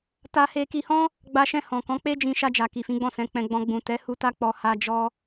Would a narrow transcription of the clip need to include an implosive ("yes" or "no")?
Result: no